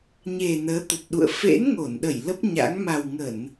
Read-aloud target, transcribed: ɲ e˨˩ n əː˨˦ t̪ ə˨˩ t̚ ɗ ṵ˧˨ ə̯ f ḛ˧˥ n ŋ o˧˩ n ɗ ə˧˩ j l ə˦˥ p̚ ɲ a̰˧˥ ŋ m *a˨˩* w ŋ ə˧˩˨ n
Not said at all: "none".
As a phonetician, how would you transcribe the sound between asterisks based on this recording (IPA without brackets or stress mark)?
a˨˩